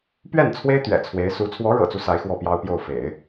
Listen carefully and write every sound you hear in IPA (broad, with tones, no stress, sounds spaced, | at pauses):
p ɥ ɛ˥˩ n t͡sʰ w e˥ ɪ̯ t̪ ɥ ɛ̰˨˩ t͡sʰ w e˧˥ ɪ̯ s u˧˥ t͡sʰ w ɔ˧˥ ɻ ɤ̰˨˩ t͡s u˦ s a˧˥ ɪ̯ x w ɔ˥˩ p j ɑ˥ ʊ̯ p j o˥˩ ʊ̯ f ḛ˨˩˦ ɪ̯